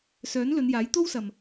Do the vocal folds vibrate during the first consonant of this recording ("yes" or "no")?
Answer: no